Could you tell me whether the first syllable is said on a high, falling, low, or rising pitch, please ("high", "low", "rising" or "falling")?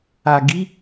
low